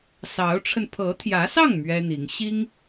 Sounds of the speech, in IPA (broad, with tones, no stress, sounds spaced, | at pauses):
s ɑ˧˥ ʊ̯ ʈ͡ʂʰ ə˧ n pʰ ɤ˧˥ t̪ʰ j ä˧˥ s ɑ˥˩ ŋ m ɥ ɛ˥ n̪ i˧˥ ŋ ɕ i˥ ŋ